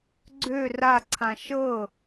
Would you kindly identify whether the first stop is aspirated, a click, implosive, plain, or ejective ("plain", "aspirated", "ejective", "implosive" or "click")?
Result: click